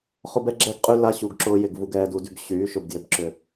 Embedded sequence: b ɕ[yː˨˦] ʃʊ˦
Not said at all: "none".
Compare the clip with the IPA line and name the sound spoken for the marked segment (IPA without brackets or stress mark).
yː˨˦